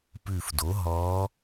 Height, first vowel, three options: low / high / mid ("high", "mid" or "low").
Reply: high